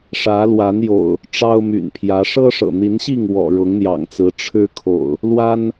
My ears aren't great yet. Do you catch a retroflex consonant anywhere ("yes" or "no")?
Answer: yes